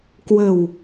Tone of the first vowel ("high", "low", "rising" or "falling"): low